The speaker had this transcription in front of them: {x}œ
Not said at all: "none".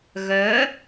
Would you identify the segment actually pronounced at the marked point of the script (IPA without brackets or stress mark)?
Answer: ɣ